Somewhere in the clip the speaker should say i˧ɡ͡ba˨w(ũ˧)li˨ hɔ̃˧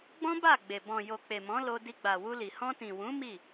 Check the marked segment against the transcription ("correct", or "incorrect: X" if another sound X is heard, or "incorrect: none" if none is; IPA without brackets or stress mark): incorrect: u˧